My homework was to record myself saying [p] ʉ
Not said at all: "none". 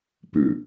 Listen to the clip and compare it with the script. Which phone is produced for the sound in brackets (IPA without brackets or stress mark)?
p